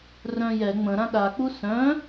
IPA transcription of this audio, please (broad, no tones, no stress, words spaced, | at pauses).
rœ̃jɛ ŋ͡mə̃ ɾãɗa k͡pusœ̃